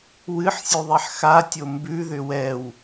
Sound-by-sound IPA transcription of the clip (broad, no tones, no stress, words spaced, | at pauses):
wɨħsʲʉðˤɛħ xatʲo mbʉðʏ wɛw